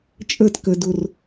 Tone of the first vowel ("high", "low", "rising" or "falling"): falling